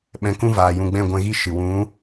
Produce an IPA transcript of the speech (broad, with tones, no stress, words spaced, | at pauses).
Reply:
ɓɛ̃˧kũ˦vaː˨ jũ˨ɡ͡bɛ̃˦˨ɡʷɛ̃˧ɣi˦ ʃɨ˨ wũ˨˦